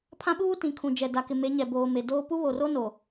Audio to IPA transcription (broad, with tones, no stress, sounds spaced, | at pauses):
pʰ ã˦ ɓ uː˦ t ĩ˨ kʰ ũ˨ d͡ʒ ɛ˨ d a˨ k ɪ˨ m e˨˦ ɲ ɛ˨ b oː˨ m e˨ d oː˦ p u˦ β o˨ r o˦ n o˨